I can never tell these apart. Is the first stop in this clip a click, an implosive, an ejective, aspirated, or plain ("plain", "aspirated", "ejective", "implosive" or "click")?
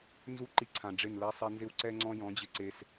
click